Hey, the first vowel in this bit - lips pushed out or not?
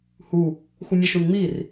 yes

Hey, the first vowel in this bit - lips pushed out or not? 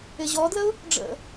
no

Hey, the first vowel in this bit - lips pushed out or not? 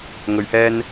yes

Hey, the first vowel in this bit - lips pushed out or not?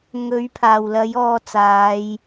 yes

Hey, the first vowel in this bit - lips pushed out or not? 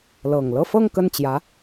no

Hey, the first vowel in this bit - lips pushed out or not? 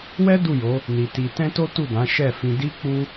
no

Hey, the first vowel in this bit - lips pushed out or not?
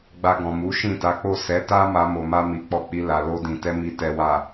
no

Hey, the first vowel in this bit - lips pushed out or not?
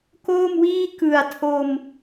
yes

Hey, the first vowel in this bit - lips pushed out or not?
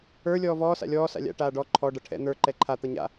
no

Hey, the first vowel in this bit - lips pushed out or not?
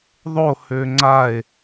yes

